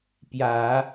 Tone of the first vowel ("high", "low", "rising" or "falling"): rising